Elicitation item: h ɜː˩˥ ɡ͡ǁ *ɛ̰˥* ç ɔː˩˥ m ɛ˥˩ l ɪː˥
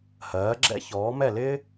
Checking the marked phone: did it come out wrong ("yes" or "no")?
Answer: no